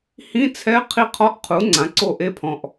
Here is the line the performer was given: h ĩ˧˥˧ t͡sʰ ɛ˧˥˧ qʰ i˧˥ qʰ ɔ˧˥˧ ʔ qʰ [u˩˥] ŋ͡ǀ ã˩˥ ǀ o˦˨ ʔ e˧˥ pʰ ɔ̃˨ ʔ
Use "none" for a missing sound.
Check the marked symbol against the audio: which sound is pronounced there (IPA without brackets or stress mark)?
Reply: u˩˥